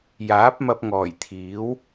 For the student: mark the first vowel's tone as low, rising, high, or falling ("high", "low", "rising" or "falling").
rising